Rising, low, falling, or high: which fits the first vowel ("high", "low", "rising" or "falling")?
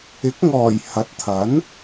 rising